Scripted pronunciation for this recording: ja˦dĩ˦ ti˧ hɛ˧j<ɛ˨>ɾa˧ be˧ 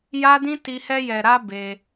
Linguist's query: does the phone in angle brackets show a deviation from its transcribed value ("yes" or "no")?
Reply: no